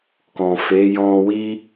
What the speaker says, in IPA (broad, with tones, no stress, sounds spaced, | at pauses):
k ɔ̃˨ f e˨˦ j ɔ̃˧ w i˦